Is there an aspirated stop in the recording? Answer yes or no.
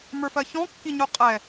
no